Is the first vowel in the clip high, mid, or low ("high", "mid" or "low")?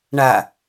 low